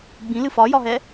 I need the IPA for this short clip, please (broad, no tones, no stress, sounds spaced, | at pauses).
ɡ͡b ĩ l ɨ f ɒ j ɒ ɦ ɛ